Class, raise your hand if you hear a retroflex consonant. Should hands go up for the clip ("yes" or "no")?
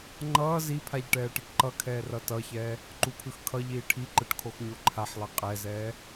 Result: yes